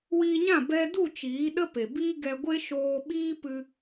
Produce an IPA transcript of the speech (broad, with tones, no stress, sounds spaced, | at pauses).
w iː˧ ɲ ã˦˨ b ɛ˧ d u˦˨ t͡ʃ iː˨˦ ɗ ə˦ p e˨ b iː˦ ɡ ɛ˧ ɡʷ e˦ ʃ oː˧ ɓ iː˦ p ɨ˧